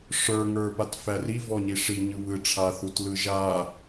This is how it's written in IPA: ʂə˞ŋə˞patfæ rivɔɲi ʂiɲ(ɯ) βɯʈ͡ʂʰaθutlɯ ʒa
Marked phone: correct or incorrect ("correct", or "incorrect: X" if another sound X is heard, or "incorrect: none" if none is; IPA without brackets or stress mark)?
correct